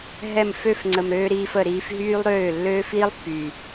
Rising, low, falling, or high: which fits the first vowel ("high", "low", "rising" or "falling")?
falling